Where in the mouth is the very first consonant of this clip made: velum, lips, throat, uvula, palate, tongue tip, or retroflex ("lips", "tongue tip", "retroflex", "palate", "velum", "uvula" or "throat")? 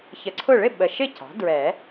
palate